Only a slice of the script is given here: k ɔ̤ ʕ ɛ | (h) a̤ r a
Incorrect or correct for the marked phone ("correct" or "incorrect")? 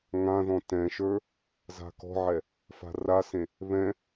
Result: incorrect